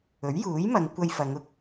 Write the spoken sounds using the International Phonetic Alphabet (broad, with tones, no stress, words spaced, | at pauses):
ɵ˨˥ɥjuː˨˥jmɐ˨˧ŋ kʷɐ˧jfɐ˨˧ŋ ʊ˥k̚